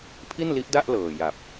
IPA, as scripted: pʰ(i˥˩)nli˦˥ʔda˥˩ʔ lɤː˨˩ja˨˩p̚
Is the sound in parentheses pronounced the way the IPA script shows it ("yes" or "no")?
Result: yes